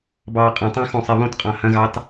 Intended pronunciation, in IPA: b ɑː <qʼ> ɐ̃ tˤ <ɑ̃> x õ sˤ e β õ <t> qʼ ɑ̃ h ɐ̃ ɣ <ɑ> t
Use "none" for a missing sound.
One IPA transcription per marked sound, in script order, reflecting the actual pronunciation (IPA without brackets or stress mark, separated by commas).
qʼ, ɑ̃, t, ɑ